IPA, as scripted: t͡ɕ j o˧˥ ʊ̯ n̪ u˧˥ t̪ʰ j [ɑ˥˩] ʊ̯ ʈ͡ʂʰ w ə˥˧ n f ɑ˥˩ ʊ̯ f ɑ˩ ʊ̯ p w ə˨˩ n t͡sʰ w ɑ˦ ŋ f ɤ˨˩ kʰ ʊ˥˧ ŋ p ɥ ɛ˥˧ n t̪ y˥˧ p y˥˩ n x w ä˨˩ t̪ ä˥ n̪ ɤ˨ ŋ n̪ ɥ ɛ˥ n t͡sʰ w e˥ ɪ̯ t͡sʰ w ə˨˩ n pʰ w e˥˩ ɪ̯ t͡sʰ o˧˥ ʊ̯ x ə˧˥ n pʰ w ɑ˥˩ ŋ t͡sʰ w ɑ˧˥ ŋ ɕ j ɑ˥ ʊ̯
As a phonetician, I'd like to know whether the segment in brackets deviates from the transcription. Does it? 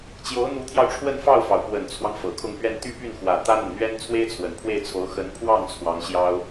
yes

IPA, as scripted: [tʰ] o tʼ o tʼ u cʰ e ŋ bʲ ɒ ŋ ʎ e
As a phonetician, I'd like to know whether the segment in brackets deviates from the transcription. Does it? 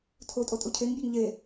no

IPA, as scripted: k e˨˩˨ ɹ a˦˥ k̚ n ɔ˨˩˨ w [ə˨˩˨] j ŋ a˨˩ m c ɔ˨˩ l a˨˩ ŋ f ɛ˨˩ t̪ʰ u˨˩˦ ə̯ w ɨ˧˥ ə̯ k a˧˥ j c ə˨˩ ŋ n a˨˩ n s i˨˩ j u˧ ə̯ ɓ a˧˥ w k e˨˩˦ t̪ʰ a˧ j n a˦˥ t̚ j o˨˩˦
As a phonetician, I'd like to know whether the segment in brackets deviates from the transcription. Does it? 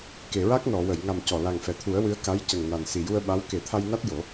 no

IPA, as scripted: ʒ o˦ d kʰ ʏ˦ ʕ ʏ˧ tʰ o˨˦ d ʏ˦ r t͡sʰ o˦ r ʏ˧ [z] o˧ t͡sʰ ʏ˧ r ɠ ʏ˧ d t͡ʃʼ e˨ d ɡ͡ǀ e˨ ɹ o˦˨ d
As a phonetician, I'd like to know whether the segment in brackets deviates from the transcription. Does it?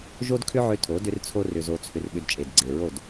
no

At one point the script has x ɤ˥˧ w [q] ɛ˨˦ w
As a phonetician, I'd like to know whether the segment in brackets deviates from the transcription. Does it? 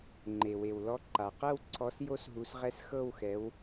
yes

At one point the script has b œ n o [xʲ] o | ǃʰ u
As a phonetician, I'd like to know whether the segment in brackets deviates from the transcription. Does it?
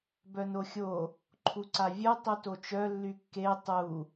no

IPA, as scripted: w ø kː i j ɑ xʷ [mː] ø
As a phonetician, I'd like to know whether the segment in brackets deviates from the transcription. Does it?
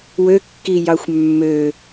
no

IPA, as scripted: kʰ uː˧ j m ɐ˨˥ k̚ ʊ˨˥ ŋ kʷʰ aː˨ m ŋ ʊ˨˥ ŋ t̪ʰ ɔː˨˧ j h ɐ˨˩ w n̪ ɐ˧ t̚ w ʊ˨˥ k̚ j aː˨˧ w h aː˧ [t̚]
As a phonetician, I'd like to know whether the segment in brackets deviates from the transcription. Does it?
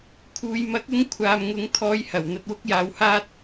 no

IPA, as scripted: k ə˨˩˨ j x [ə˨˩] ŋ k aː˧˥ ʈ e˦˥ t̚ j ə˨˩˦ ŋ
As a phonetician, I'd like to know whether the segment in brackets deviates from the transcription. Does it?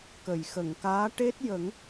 yes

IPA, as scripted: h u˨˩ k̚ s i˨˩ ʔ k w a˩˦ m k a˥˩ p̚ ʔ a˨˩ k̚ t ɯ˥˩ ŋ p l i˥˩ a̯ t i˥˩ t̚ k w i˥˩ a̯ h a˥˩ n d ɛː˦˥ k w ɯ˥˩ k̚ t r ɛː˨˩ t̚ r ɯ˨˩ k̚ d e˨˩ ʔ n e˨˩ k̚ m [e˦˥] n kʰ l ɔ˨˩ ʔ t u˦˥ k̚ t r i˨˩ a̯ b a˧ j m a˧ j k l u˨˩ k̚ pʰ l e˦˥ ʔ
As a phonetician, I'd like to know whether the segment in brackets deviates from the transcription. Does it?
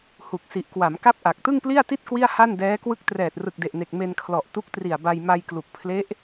yes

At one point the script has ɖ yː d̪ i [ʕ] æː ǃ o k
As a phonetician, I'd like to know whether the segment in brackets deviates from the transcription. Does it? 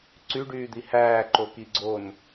yes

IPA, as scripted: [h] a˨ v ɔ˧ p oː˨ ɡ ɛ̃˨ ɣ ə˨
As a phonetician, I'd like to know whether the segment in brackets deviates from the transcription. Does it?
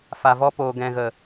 yes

